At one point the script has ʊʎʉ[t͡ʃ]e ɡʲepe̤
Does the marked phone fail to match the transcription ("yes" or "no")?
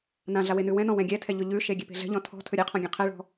yes